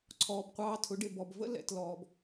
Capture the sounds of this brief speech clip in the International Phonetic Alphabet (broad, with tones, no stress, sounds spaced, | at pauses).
ǀʰ ɔː˨ b qʷ ɑː˧ tʰ ʊ˨˦ ɖ ɪ˨ b ɔ˨ b v ə̰˦ l ɛ̰˨ t l ɔː˨ b